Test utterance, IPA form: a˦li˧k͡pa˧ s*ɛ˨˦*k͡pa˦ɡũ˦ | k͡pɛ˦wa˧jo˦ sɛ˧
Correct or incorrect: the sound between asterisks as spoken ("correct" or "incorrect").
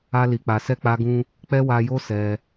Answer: incorrect